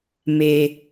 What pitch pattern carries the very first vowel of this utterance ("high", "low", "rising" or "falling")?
low